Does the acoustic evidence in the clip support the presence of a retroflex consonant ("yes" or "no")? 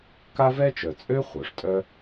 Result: yes